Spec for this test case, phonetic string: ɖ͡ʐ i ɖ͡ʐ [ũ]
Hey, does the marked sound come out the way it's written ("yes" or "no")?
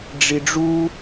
no